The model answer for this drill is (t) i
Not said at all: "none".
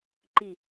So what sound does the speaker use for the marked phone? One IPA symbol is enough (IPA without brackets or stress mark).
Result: ǃ